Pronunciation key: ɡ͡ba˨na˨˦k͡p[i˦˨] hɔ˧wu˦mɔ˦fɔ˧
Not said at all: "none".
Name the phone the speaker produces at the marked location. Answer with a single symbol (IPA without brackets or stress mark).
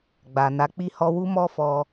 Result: i˦˨